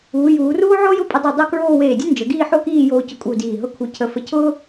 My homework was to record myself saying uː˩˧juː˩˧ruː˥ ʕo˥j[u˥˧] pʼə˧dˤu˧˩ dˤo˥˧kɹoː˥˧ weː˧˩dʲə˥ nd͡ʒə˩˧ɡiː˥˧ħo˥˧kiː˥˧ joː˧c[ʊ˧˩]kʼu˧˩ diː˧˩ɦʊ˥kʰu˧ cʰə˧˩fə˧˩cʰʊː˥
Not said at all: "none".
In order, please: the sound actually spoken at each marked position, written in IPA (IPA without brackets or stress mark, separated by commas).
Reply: ʊ˥˧, ʊ˧˩